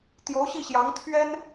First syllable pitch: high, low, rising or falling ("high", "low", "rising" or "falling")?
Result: rising